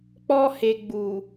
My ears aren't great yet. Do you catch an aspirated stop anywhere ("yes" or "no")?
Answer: no